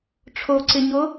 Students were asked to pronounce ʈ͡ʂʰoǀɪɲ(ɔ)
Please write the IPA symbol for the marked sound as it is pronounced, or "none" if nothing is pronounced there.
o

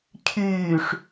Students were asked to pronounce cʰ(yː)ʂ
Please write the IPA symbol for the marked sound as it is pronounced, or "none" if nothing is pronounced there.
yː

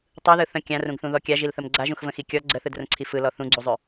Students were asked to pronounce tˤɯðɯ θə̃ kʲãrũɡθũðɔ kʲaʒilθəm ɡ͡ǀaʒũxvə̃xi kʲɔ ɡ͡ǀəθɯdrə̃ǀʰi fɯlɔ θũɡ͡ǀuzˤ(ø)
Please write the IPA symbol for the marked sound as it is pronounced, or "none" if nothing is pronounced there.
ø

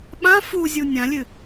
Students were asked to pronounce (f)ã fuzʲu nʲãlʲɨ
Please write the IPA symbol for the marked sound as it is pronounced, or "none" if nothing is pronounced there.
ɓ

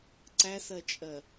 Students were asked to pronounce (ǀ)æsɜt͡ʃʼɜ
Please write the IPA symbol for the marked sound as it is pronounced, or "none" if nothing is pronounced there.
ǀ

